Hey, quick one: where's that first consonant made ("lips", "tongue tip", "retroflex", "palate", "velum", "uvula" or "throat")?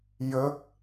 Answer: palate